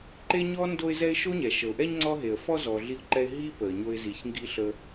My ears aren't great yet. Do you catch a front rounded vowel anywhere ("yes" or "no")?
no